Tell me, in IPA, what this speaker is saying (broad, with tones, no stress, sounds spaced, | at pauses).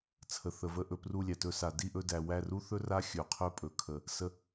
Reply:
t͡sʰ ə˨ θ ə˨ v ə˧ ʔ ɵ˨ p r u˦˨ lʲ æ˨ t ɵ˧ s a˨ d i˦˨ ʔ ɵ˧ d æ˨ w æ˦˨ r u˦ θ ɵ˦ r a˦ xʲ ɵ˨ qʰ ɵ˦˨ pʼ ɵ˨ kʰ ə˨ | s ə˧